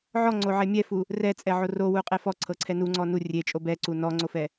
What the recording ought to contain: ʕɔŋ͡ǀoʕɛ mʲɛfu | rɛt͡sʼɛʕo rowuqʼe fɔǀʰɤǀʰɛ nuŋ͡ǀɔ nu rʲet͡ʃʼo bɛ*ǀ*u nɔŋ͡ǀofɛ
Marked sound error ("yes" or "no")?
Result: no